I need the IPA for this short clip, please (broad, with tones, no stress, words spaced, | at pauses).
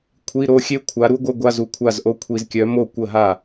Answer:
kʷʰi˧˥˧ɾo˥˧xʲe˥ kʷʰa˨˦ɾu˥ɡʷə˧˥˧ ɡʷa˧˥˧zu˨kʷʰa˥˩zʔo˥˧ kʷʰi˨zkʲœ˨˦ mo˥˩kʷə˥˩ɦa˥˩